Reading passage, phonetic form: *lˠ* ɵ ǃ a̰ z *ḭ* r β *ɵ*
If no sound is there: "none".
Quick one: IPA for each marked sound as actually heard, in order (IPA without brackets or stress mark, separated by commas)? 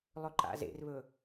lˠ, ḛ, ɵ